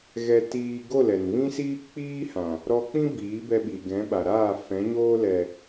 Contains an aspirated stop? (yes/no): no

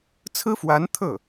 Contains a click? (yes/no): no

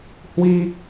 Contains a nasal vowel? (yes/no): no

